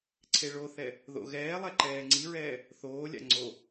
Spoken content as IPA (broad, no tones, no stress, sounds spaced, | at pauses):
ǀʰ e ɭ o θ ɛ | ð o̰ ɣ ɛː lˠ ɛ ǃ ɛː ŋ͡ǀ i ɹ ɛː | θ oː lʲ a̰ ŋ͡ǀ o